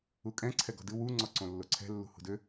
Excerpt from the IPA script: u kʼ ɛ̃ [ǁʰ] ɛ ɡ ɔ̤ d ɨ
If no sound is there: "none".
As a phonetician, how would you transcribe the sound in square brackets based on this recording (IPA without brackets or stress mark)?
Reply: ǀʰ